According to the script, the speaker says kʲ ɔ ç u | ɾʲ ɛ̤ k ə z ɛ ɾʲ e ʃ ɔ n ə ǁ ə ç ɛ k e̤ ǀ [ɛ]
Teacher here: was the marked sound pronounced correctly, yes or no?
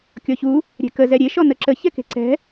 no